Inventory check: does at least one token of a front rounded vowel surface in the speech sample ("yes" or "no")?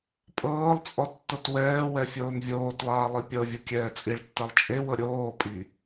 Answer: no